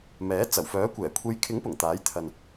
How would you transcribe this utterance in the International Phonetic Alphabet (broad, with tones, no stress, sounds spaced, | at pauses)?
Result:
m ɛː˨˥ t͡s ɐ˨˩ w f œː˨˥ kʷ ɛː˨˩ kʷʰ e˧ j kʰ ɪ˨˥ ŋ p ʊ˨˩ ŋ t̪ aː˨˥ j t̪ʰ ɐ˨ n